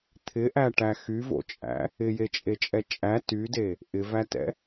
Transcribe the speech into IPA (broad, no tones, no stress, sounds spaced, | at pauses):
t̪ʰ ɪ ʔ æ ʈ æ x y v o̰ t͡ʃʼ æ̰ | ɪ j e t͡ʃʼ e t͡ʃʼ ɛ t͡ʃʼ æ t y d e | ʔ ɪ v æ t ɛ̰